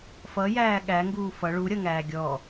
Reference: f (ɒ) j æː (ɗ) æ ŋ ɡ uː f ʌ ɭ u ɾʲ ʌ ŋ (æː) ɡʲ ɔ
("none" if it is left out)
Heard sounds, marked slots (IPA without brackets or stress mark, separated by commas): ʌ, ɠ, æː